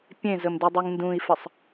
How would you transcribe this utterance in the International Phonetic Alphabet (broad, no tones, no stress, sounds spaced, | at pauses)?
pʲ ẽ z ə m d y dˤ y ŋ n d ũ i̯ f ə sˤ